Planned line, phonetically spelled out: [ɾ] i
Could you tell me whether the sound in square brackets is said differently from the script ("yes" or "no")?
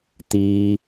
yes